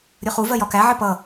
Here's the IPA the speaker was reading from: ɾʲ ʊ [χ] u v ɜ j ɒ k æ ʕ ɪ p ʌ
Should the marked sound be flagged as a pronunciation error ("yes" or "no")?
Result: no